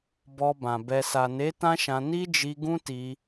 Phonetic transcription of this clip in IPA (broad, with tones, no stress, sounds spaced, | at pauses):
b ɔ˧ b ã˨ b ɛ˨ s a˨ n e˨˦ t ã˦ ʃ ã˧ n i˦ d͡ʒ i˧ ɡ ũ˦ t i˧